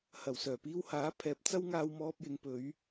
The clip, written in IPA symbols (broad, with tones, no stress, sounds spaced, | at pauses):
h ɐ˨˩ w s œː˨˩ p iː˧ w h aː˨˥ pʰ ɛː˨˥ p̚ t͡s ɐ˥ w ŋ aː˧ w m ɔː˧ p̚ j ɪ˨˧ ŋ p ɵ˨˧ ɥ